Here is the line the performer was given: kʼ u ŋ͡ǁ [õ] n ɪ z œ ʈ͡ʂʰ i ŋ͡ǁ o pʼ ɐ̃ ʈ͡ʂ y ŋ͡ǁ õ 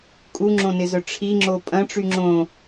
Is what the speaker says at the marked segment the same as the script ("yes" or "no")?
yes